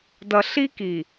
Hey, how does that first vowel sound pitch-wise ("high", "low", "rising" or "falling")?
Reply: low